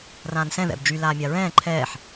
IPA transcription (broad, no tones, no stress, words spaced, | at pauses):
rãːnsɛ̃ ðɛ̰b d͡ʒy laːmʲaɹɛ̃ː ǃʰɛːħ